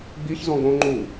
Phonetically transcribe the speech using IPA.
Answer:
ɡ͡biçzɔ̃ ɡõ ŋ͡ǃu

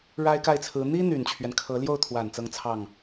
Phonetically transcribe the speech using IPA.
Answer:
ɻa˥ɪ̯ka˥˩ɪ̯t͡sʰɹ̩˧˥ n̪i˥ n̪y˨˩nt͡ɕʰɥɛ˦nkʰɤ˧˥ ljo˥˩ʊ̯t̪ʰwa˨˩n t͡sɤ˥˧ŋt͡sʰɑ˥˩ŋ

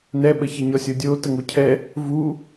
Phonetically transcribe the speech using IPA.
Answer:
nɛɓəçɛɲɔ sʲodʲo təŋocʰɛ | vu

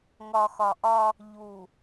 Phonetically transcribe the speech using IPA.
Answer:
ŋɒ˨xɒ˨ʔɒ˦ | ʎu˨

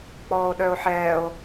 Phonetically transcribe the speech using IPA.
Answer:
k͡pɔːo̯ɗœo̯ħɛːo̯

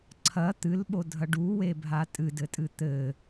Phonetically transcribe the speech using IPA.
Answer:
ǀʰɐ t̪ɨlɓodʱɐ ɖuwebʱa tʼɨdɘtʼɨ t̪ɘ

